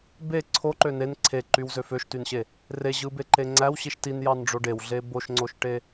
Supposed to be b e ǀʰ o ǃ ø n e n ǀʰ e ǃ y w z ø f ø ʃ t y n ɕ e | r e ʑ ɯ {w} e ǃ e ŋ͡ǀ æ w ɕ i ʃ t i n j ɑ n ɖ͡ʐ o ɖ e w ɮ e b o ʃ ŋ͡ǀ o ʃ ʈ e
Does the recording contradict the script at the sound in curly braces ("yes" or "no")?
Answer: yes